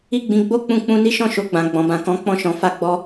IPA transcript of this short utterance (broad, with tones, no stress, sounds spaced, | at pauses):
i˦ ɡ͡b ĩ˧ ɡ͡b o˦ k͡p ũ˧ k͡p ũ˧ n i˦ ʃ ɔ̃˦˨ ʃ o˧ ɡ͡b ã˨ ɡ͡b ɔ̃˨ b ã˨ k ɔ̃˨˦ k͡p ɔ̃˦˨ ʃ ɔ̃˨˦ f a˦˨ ɡ͡b ɔ˧